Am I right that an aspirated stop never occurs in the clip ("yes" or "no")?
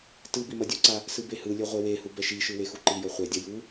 yes